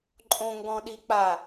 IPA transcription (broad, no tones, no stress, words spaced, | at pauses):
ǃʼõŋɡɔ̃ɗik͡pa